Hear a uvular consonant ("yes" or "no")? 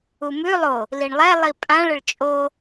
no